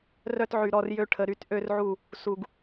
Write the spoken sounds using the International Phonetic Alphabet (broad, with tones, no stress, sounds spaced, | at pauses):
r œ˦ t ʕ y˨ ɾ ɔ˦ r j ø˦ ʈʰ ə˨ ɾ y˦ t ʔ ø˦ r ʕ u˦˨ | s u˨ ɡ